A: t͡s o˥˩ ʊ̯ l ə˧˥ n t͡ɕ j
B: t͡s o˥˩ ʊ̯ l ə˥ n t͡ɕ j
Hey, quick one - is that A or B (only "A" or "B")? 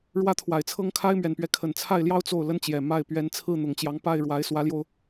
B